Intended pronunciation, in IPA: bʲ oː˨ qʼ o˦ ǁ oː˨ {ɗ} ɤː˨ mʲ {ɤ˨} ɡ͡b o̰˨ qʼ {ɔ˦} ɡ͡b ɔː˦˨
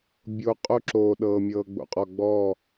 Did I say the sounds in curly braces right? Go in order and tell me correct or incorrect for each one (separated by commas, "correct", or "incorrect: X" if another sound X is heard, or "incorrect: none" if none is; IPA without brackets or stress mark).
correct, incorrect: ɤː˨, incorrect: ɔ˨